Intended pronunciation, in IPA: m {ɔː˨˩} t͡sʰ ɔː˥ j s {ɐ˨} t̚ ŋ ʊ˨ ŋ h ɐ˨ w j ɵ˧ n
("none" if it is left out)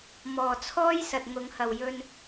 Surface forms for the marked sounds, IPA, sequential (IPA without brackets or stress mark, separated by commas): ɔː˨˩, ɐ˨